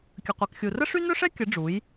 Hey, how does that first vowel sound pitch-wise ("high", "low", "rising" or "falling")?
low